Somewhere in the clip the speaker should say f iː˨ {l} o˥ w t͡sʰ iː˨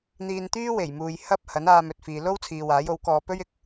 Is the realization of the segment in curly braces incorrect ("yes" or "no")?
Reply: no